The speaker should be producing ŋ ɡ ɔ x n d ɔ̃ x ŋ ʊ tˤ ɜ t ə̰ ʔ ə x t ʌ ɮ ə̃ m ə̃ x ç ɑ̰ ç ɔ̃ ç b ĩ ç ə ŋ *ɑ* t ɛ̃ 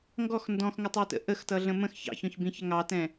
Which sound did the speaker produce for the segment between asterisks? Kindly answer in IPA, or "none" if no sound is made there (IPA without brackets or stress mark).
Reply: ɑ